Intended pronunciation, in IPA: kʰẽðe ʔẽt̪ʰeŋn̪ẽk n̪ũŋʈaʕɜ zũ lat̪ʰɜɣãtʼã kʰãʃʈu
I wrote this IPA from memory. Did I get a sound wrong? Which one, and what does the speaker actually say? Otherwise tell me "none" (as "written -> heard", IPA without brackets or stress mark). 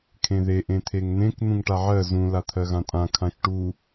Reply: none